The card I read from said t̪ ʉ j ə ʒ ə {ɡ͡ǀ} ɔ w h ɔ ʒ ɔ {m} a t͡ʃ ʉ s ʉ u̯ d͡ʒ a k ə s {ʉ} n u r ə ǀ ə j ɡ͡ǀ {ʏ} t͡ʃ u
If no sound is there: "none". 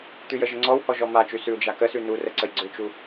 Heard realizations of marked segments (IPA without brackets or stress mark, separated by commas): ŋ͡ǀ, m, ʉ, ʏ